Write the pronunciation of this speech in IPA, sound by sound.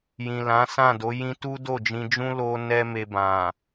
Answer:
jĩ˨lã˨˦sã˦˨do˨˦ jĩ˦ tu˦do˦˨ d͡ʒĩ˧d͡ʒũ˦ lo˦nɛ˦me˧bã˨

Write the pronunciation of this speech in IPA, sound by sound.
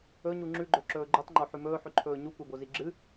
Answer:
ɵɲu ŋ͡ǁʉɡ͡ǃɵ ǁɵːɡ͡ǃutˤŋ͡ǃo ħʉmɵːħʉǃʰɵː ɲukʷebozi ɡ͡ǁɨ

